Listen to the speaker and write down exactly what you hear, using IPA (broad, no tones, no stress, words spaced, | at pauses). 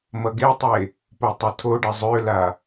mʌɡetˤe | potˤətʰoɖə zˤøla